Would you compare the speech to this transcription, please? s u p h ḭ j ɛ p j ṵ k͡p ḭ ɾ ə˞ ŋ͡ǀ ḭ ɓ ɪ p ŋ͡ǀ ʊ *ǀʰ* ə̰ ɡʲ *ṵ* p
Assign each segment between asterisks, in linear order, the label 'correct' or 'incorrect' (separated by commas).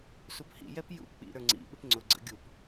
incorrect, incorrect